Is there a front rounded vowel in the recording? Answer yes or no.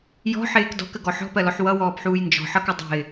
no